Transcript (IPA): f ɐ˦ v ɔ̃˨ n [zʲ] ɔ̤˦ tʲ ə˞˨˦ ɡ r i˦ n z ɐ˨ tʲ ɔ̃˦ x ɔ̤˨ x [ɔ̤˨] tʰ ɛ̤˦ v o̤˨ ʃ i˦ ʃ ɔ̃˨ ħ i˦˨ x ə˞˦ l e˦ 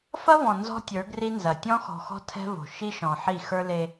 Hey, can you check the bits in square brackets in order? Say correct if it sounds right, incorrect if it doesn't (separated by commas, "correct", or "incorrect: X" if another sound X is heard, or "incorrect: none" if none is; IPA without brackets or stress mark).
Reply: incorrect: z, incorrect: ɔ̤˦